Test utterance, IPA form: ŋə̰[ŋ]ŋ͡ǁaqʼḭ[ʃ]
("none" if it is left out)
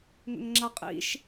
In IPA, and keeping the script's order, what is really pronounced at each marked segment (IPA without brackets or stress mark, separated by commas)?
ŋ, ʃ